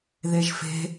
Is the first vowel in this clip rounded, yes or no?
no